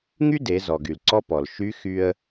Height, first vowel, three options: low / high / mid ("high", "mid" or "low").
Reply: high